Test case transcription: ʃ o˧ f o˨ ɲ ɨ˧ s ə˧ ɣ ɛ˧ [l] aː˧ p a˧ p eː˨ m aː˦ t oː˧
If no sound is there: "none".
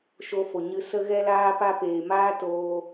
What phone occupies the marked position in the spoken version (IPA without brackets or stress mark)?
l